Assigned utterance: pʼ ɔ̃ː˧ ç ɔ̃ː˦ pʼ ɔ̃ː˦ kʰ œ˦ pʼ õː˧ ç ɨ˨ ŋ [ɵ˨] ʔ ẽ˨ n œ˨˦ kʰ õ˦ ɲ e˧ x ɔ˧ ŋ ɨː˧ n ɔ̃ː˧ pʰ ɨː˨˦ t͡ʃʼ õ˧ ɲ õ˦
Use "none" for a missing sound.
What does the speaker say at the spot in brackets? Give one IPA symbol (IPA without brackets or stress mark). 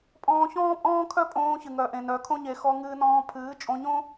œ˨